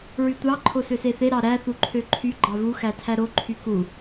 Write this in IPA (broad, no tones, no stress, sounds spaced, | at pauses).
ɹ y tʷ ɑ ǃʰ o s ø s e θ e ɾ ɑ ɾ æ θ u ǃʰ ø ǃʰ y ɡ͡ǃ ɑ v u x æ tʰ æ ɾ o ǃʰ y k u